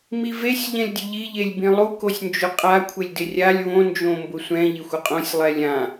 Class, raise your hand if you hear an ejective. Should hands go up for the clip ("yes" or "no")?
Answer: yes